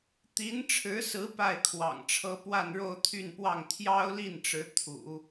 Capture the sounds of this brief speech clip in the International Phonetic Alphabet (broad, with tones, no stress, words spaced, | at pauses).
t̪i˧˥nʈ͡ʂʰɻ̩˧˥sɹ̩˧˥ pa˥˩ɪ̯kʰwɑ̰˨˩ŋʈ͡ʂʰɤ˥ pwa˥˧nɻo˥˧ʊ̯t̪ʰy˥˧npwɑ˥˩ŋ t̪ʰjɑ˥ʊ̯li˥˩nʈ͡ʂɻ̩˧˥ t̪ʰṵ˨˩˦